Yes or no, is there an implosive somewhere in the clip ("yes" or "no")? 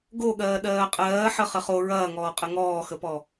yes